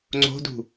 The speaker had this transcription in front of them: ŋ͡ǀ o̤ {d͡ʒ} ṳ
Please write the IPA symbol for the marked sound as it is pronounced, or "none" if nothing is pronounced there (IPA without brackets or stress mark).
d